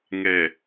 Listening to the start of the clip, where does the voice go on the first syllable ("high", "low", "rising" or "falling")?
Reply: low